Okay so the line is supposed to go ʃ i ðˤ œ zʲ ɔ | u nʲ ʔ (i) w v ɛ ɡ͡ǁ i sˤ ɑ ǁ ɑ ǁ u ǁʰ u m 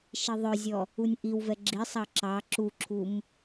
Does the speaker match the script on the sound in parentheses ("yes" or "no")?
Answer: yes